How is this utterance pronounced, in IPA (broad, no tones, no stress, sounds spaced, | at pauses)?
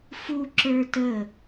f u ǁ ə˞ t ə